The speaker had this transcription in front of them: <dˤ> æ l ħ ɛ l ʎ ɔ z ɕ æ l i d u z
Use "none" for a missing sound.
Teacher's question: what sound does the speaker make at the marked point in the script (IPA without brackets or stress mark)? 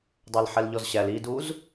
dˤ